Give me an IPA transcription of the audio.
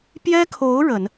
pjɛ˥kʰo˧˥ʊ̯ ɻə˨˩˦n

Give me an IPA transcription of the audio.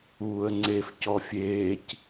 uːə̯ŋ͡ǀef cɔfʲeːc

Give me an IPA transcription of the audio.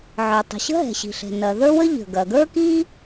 ʕə˞˩tˤə̤˩ɕə̤˥ɦɛ̤˩ ɕi̤˩ɬɛ̤˩nɐ˩ ðə˞˥wə˥ ʎə̤˩ɡɐ˩ ɡə˞˥ki˥

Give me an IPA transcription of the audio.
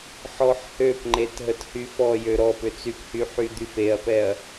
ħɔħhøpŋ͡ǃet ɦəthyfɔjø ɾɔ pʏt͡syphy ħyd̪yfeɐ̯pɛɐ̯

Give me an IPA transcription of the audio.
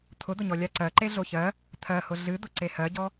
t̪ʰʊd̪ʊɲɔ lʲaǀɜǃe ɮoçɜ | t̪ʰɜhʊ ɮɨd̪ʊ ǀehɜɟɔ

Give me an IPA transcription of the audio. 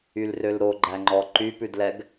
ylrølɾoɡ͡ǃæ ŋ͡ǃɔǃypʉdlɛɡ

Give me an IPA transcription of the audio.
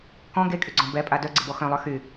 kɔ̃ ɡekʼyɡ͡ǀɔ̃ bɛpʼa dœɡ͡ǀɪbɔ xœ̃lˠœ xy

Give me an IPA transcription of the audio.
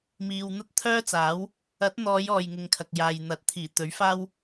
miː˨wn̪ɐ˥t̚t̪ʰœː˥t͡saː˨˥w | ɐ˨˥t̚n̪ɔː˨˧j ɔː˨jŋɪ˨ŋkʰɐ˨k̚jaː˨j n̪ɐ˨˥t̚t̪ʰiː˨˩t̪ɵ˨˥ɥ faː˥w

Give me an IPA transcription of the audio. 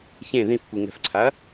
çẽ ðĩfkʷi ŋɛ̤fǀʰaɐ̯

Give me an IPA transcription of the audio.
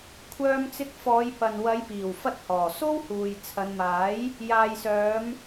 kʷʰœː˧mt͡sɪ˧k̚fɔː˨˧j pɐ˨n wɐ˨˧jpiː˨˩wfɐ˧t̚hɔː˨˩ so˥whuː˨j t͡sʰɐ˨˧nmaː˨˥j | jaː˨jsœː˨˧m

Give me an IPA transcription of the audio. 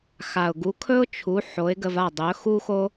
xa˩ʊ̯ɡu˩˥kʰɵ˥ʊ̯ t͡ʃʰu˩˥ ħo˩˥ɪ̯ɡə˧va˥˩dˤɵ˩˥ xu˥xo˥

